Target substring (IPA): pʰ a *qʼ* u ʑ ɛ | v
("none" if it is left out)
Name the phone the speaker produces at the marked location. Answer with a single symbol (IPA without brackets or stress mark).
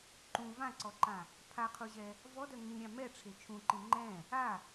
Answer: qʰ